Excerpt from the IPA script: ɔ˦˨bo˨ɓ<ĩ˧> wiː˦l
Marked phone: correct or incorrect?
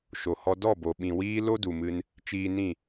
incorrect